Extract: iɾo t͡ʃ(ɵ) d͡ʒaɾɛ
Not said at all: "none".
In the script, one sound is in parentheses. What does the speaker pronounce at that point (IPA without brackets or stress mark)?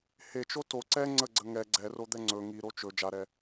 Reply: ɵ